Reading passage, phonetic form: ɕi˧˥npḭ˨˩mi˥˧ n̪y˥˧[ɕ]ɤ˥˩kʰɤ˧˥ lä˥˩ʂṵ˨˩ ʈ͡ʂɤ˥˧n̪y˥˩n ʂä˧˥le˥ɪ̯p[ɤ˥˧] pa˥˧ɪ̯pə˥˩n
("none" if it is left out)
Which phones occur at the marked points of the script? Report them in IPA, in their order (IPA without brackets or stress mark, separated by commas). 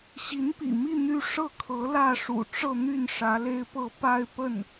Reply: ʂ, ɤ˥˧